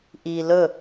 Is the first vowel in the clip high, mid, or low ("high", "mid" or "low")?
high